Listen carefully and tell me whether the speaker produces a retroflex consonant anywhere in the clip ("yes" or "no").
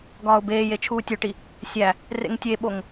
yes